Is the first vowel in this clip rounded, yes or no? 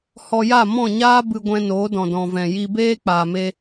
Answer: yes